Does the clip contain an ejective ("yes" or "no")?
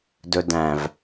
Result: no